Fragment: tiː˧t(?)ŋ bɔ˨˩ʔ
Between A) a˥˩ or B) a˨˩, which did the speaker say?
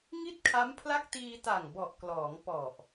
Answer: B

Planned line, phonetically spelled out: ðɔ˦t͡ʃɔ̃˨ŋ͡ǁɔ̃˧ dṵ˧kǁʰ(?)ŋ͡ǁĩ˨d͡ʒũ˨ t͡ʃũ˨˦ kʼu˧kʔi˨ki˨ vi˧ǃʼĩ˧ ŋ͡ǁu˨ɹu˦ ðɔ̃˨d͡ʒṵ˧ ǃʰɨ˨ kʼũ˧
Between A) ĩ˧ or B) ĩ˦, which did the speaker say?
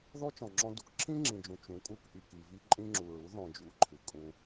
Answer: B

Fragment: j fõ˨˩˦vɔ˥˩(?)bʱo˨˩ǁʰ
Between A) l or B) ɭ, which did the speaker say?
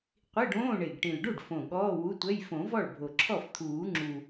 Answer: B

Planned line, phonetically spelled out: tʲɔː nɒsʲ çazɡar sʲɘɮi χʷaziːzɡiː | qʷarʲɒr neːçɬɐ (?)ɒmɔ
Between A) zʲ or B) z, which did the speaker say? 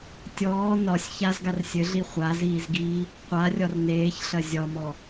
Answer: A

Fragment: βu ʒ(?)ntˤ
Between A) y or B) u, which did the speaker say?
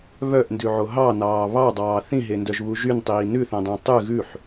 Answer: A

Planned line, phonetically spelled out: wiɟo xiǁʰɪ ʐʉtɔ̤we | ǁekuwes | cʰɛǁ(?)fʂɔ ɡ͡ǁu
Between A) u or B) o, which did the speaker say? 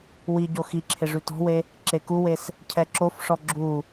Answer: B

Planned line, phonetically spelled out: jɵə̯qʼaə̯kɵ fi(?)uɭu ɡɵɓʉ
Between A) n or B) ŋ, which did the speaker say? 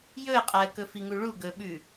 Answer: B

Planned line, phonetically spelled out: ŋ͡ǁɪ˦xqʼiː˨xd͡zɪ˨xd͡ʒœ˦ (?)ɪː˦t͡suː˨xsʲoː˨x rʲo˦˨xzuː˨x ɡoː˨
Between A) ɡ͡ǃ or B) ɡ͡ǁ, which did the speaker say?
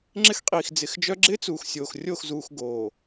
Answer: B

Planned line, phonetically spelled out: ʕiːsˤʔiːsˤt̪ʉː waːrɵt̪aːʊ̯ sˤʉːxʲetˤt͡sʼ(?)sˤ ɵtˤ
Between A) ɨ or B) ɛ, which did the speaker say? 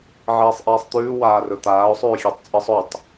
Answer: A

